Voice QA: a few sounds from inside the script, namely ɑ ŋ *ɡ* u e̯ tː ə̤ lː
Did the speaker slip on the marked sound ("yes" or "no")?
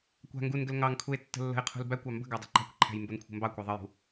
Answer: yes